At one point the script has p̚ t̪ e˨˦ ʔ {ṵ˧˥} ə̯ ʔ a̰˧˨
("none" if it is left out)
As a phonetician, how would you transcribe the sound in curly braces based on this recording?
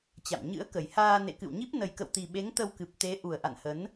u˨˩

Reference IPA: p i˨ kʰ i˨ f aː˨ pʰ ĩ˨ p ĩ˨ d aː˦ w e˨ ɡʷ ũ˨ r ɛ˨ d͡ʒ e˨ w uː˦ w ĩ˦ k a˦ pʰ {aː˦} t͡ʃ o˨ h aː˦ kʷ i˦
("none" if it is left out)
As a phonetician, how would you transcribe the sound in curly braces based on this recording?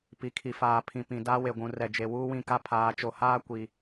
aː˨˦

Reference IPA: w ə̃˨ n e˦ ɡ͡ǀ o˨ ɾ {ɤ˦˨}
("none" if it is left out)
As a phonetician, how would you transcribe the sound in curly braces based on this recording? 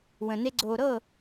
ɤ˦˨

